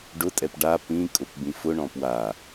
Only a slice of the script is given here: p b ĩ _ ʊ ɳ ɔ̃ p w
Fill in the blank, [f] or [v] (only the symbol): f